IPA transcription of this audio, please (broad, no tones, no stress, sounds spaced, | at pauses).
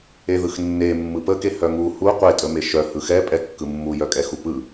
e ð ɯ x nː e mː ɯ p ə k e h œ ŋ u h u qʷ e tʼ ə m e ʃ œ h ɯ x ɛ pʼ ɛ kː ɯ mː u j œ kʼ ɛ x u p ɯ